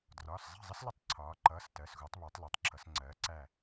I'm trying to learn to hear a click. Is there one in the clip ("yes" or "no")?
yes